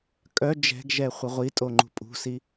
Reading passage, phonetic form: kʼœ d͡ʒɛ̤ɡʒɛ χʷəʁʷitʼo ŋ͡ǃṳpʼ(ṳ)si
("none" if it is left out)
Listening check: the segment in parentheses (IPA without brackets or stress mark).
ṳ